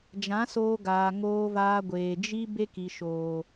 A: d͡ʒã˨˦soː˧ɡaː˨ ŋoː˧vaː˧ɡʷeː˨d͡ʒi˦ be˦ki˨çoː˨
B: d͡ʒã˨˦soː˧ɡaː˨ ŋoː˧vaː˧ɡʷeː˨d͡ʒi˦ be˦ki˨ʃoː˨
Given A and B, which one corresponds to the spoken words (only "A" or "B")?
B